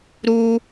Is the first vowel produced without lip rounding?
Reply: no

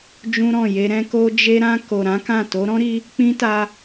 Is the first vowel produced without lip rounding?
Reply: no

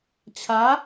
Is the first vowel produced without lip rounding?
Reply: yes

